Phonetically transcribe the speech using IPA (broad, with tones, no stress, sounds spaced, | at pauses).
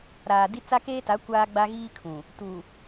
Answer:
ɾ aː˨ d i˦ t͡s a˦ k eː˦ t a˨˦ kʷ aː˦ ɡ͡b a˦ ɣ iː˦ kʰ ũ˨ | t u˨